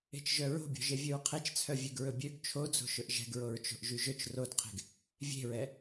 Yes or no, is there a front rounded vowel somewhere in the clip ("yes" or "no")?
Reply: yes